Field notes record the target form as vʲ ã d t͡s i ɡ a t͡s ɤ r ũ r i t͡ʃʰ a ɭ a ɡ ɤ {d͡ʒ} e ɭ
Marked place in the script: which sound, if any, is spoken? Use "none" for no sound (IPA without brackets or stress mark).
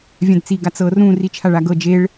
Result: d͡ʒ